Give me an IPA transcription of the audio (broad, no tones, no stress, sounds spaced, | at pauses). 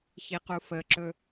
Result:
ç i q u f ə ǁ ɵ